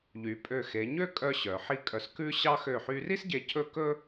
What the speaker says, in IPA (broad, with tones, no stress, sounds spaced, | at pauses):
ʎ y˩˧ pʼ ø˧˩ x e˩˧ ɲ ø˥˧ kʼ œ˧ ɕ œ˩˧ ħ i˥ kʼ œ˧ s k ʉ˥ ɕ ɑ˥ x ø˧˩ ħ y˧ r i˥ s ɟ e˧ cʰ ɵ˥˧ k ɵ˥